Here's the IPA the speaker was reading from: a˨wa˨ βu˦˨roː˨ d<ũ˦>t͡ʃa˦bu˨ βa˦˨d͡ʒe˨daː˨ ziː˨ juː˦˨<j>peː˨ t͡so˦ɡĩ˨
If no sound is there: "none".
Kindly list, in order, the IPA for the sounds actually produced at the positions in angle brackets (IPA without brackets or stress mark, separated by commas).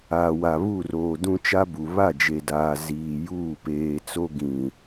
ũ˦, none